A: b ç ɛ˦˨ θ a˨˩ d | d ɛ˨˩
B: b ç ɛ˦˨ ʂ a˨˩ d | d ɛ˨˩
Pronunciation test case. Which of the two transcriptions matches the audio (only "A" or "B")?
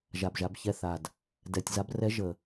A